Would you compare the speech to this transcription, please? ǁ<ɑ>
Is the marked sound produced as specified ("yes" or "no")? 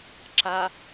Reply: no